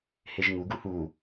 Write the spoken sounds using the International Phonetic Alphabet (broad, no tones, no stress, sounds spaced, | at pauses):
h e ʒ ŋ u ɡ u h u